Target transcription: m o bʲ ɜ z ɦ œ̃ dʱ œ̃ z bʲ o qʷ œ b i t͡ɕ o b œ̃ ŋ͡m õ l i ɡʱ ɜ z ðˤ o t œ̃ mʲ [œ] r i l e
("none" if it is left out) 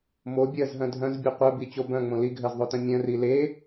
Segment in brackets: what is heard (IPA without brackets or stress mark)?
œ̃